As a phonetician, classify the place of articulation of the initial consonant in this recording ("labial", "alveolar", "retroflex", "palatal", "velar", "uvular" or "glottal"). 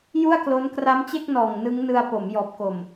palatal